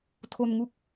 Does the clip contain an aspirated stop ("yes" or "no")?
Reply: yes